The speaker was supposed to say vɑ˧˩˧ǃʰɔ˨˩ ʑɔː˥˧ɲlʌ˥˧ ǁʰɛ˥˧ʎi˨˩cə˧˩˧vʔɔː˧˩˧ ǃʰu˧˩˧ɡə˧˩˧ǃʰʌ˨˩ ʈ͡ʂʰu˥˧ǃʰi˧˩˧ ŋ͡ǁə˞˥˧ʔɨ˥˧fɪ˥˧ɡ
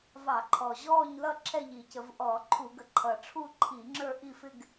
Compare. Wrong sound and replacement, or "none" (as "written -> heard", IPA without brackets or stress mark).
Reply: ɨ˥˧ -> i˥˧